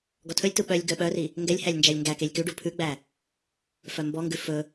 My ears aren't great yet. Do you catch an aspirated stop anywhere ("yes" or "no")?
yes